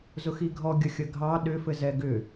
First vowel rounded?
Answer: yes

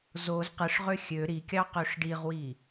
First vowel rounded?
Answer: yes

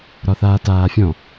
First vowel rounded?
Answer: yes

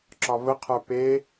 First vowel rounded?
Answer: yes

